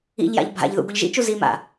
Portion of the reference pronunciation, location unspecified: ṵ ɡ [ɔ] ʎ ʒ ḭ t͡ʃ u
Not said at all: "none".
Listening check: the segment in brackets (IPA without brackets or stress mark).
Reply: o